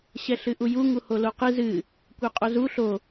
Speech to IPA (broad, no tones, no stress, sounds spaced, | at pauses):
ɕ ɛ ɬ ɨ ʔ u j u ŋ u h o l o q ɨ z ɨ | kʷ ɛ qʼ o z u ɬ o